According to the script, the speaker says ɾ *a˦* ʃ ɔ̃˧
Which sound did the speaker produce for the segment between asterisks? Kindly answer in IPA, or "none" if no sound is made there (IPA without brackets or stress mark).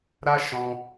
a˦